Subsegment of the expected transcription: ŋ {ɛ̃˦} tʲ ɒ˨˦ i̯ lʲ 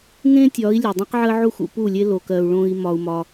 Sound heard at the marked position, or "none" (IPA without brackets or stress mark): ẽ˦